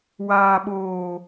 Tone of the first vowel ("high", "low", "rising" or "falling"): low